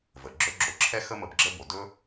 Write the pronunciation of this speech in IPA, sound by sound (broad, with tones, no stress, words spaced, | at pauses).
və˩ ɡ͡ǁɵ˥ɡ͡ǁo˧˥ ǁʰɛ˥xə˥ mə˧bɡ͡ǁə˥bo˩˧ dɵ˥